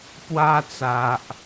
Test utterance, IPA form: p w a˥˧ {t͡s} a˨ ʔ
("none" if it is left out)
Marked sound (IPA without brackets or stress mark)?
t͡s